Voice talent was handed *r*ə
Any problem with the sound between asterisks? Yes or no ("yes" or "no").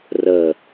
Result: no